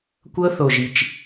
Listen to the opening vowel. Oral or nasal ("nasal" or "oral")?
oral